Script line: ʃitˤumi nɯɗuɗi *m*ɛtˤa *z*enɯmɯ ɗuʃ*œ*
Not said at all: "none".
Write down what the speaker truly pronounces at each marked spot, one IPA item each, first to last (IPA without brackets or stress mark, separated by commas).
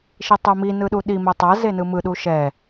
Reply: m, z, ɛ